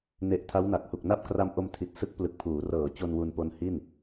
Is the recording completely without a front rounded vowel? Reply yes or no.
yes